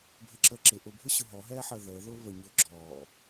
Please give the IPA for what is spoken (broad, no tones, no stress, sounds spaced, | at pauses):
bʱ ə ǁ əː ǁ ɪ ʔ ʊ bʱ ʊ ɕ ʊ ɦ ɔ ɦ ɛː ħ əː ð əː ð ʊː β ə ɲ ʊː ɡ͡ǁ ɔː